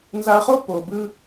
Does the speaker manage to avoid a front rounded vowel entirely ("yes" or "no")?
yes